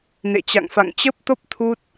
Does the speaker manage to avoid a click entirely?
yes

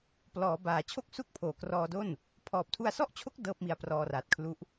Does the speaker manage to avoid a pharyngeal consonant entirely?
yes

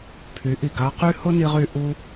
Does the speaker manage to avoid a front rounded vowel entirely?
no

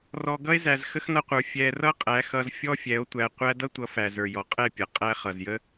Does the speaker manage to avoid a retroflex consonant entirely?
yes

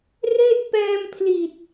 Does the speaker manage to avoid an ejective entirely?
yes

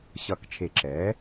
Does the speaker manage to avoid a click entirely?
no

